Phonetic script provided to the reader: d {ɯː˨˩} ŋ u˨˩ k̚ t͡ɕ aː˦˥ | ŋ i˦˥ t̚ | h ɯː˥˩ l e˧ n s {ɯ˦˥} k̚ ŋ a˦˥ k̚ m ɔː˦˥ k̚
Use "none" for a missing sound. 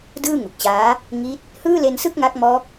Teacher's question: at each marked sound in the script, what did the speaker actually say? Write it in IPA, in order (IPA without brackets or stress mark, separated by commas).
ɯː˥˩, ɯ˥˩